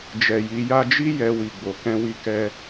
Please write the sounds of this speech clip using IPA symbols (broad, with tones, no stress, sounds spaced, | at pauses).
d͡ʒ ɛ˨ j i˨˦ j a˧ d͡ʒ i˦ j ɛ˧ w i˨ ɡ͡b o˨ k ɛ̃˧ w i˧ k ɛ˧